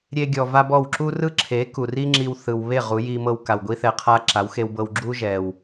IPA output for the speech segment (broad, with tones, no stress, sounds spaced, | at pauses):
ɾʲ e˦ ɡʲ ɔ˧ v a˦ b ɔ˦˨ w ǁ u˦ r ɯ˦ ǁʰ e˨˦ k u˨ r i˦ ŋ͡ǁ i˧ w θ ɯ˨ w β e˦˨ ʁ u˨˦ j i˧ m ɤ˧ w k a˨ w ɡʷ i˦ θ ɛ˧ qʰ a˦ ǁ a˨˦ w x e˧ w b ɤ˧ w ɡ͡ǁ u˦ ʒ ɛ˨ w